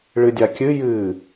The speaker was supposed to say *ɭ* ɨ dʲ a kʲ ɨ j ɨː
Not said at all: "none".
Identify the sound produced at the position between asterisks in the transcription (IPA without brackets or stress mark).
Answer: ɭ